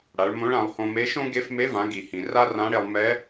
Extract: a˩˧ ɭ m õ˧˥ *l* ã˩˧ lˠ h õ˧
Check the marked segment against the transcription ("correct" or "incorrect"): incorrect